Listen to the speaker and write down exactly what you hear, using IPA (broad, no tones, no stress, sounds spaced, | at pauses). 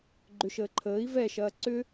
ɡ͡ǃ ʏ ʃ əː ǃʰ əː i̯ v ɛ ʃ ɐː ǀ ʏ